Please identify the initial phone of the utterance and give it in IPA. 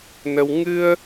n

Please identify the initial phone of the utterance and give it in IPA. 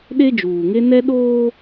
ɗ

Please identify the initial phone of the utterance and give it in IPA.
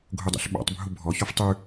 ɡʱ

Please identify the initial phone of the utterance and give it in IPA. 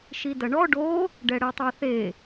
ʃ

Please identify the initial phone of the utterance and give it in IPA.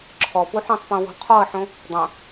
ǁʰ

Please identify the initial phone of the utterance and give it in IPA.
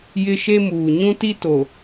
j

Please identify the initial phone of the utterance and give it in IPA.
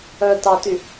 œ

